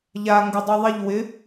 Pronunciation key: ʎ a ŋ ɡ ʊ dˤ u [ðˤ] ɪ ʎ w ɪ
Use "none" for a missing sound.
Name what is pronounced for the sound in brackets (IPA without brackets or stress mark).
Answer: ðˤ